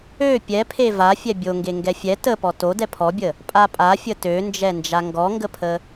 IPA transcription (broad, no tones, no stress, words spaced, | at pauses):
ø pʲɛpʰe vafʲɛ bʲoŋɡe ŋɡɛfʲɛ təpɔ to dɛpʰɔbʲə | pʼapʼafʲə tønd͡ʒɛnd͡ʒa ŋɡɔŋɡəpʰə